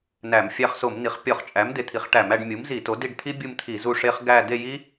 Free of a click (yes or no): yes